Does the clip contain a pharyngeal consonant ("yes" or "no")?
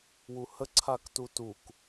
no